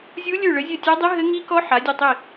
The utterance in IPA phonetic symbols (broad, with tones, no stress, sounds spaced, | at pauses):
zʲ u˦˥ lʲ ʉ˦˨ ɭ ɘ˨˦ zʲ ɘ˦˨ tʲ a˦˥ dˤ i˦˥ ɦ ɘ˦˥ ŋ i˦˥ k ɔ˦˥ ħ a˨˦ dʲ ɘ˦˨ tˤ i˦˨